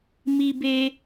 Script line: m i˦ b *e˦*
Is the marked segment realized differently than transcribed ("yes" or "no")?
no